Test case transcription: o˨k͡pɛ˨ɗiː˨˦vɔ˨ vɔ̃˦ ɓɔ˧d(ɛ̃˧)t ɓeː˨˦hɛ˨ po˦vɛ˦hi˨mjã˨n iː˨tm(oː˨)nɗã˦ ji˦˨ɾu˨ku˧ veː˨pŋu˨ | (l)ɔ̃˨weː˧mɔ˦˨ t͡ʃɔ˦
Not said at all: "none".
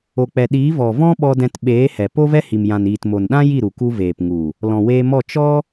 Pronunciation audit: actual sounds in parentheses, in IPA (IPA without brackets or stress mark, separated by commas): ɛ̃˧, o˨, l